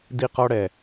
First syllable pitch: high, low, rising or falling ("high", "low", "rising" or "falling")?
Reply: high